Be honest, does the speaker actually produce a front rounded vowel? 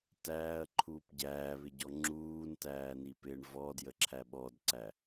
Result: no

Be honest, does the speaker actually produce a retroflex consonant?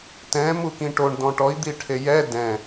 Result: yes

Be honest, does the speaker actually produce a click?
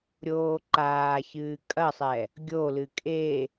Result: yes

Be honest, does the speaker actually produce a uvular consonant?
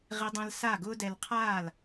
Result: yes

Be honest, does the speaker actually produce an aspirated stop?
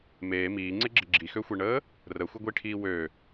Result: yes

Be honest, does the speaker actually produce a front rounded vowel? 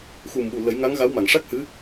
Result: no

